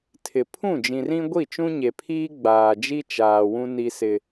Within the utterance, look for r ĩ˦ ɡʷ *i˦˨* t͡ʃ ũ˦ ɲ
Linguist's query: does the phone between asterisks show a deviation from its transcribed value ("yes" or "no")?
no